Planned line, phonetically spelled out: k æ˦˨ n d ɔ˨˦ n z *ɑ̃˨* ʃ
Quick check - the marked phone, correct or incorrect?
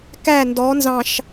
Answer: correct